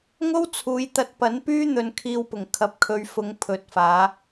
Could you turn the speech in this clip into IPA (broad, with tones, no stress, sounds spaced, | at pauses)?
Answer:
ŋ o˥ w t͡sʰ uː˨˧ j t̪ ɐ˧ t̚ p ɐ˨˥ n p yː˥ n̪ ɵ˧ n kʰ iː˧ w p ʊ˨˩ ŋ kʰ ɐ˨ p̚ kʰ ɵ˨˧ ɥ f ʊ˨˧ ŋ pʰ ɵ˨ t̚ f aː˨˧